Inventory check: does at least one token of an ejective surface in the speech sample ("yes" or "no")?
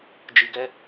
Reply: no